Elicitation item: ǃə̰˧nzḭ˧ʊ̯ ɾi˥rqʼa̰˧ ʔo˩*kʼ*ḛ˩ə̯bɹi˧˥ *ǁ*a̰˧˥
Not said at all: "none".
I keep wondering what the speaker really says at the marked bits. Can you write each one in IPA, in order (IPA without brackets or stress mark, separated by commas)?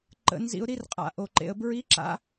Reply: ǃ, ǁ